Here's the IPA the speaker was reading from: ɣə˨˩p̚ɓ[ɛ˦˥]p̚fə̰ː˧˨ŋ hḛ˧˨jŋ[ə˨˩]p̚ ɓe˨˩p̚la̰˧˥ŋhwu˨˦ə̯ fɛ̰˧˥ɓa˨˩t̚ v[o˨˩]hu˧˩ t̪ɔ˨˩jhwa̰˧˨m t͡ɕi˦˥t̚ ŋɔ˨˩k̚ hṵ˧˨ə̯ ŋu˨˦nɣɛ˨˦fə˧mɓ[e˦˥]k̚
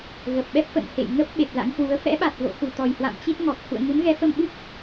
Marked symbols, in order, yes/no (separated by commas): yes, no, no, no